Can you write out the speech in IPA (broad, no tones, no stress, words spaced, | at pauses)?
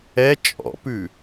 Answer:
ɛ t͡ʃʼɔ̰pʉ